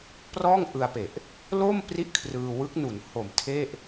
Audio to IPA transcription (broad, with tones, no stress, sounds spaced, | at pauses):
p r ɔː˥˩ ŋ ʔ ɯ˧ a̯ p e˨˩ ʔ | l o˥˩ m p r i˦˥ ʔ kʰ r ɯː˧ w ɯ˦˥ k̚ n u˩˦ n h o˨˩ m tʰ e˥˩ ʔ